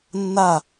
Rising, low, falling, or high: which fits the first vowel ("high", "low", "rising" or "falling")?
falling